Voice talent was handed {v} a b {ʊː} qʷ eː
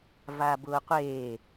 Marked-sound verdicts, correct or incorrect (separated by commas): correct, correct